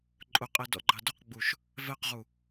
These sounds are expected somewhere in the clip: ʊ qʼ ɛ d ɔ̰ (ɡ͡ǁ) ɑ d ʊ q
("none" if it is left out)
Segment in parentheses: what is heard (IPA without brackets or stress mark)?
ɡ͡ǃ